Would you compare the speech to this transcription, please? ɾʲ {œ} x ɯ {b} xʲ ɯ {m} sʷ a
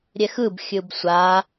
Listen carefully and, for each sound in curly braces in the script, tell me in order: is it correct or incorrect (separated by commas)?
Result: incorrect, correct, incorrect